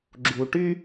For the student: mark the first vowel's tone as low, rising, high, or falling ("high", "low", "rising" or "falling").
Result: low